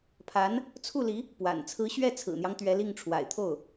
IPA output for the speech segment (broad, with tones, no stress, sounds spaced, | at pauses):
pʰ a˧˥ n | t͡sʰ u˥˩ l i˧˥ | p w a̰˨˩ n t͡sʰ ɹ̩˧˥ ɕ ɥ ɛ˥˩ t͡sʰ ɹ̩˨˩ n̪ j ɑ˦ ŋ t̪ ɥ ɛ˧˥ l i˥˩ ŋ ʈ͡ʂʰ w a̰˨˩ ɪ̯ t̪ʰ o˥˩ ʊ̯